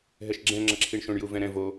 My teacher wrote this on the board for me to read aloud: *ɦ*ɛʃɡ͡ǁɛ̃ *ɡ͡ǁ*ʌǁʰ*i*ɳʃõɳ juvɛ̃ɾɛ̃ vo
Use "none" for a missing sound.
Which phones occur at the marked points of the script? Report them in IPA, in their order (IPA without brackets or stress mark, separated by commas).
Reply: ɦ, ŋ͡ǁ, i